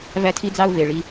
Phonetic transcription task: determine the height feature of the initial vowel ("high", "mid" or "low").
low